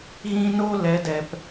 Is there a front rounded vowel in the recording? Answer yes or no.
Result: no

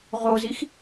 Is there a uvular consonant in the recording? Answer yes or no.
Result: yes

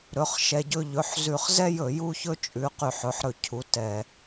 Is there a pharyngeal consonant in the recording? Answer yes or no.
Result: yes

